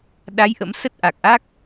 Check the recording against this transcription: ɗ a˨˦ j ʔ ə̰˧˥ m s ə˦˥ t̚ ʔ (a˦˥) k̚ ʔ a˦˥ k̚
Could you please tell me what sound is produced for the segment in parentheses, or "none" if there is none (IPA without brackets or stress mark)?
a˨˩